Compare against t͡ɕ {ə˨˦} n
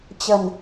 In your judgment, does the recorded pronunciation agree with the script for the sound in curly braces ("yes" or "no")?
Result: no